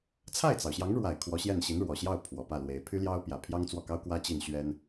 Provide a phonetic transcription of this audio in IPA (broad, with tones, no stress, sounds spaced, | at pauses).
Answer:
t͡sʰ a˥˩ ɪ̯ t͡s ɑ˩ ʊ̯ ɕ j ɑ˧˥ ŋ ɻ w a˨˩ ɪ̯ kʰ w ɔ˧˥ ɕ j ɛ˥˩ n ɕ i˧˥ n ɻ w ɔ˨˩ ɕ j ɑ˥˩ ʊ̯ pʰ w ɔ˨˩ p ä˥˩ l w e˧˥ ɪ̯ pʰ y˥ l j ɑ˥ ʊ̯ p j ä˨˩ pʰ j ɑ˥ ŋ t͡s w ɔ˥˩ k ɑ˥ ʊ̯ k w ä˥ t͡ɕ i˥˩ n ɕ ɥ ɛ˥ n